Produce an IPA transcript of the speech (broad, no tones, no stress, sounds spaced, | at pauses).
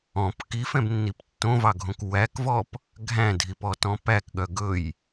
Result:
ɔ̃ p k i f ɛ̃ b nː i p tː õ v ɑ ɡʱ õ k w æ k v ɔ p | ɡʱ æ̃ dʱ i p ɔ t ɔ̃ p æ k ɠ œ ɡ ɵ j